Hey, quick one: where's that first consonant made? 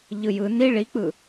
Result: palate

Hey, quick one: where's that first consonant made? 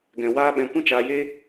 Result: velum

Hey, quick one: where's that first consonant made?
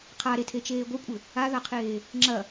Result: uvula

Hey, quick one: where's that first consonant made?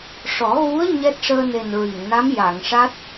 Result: retroflex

